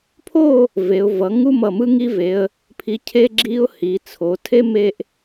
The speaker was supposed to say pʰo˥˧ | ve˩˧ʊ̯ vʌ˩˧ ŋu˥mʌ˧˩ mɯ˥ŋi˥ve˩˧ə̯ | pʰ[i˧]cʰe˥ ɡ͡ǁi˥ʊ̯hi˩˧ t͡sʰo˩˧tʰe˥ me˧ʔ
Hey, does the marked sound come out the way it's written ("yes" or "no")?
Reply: yes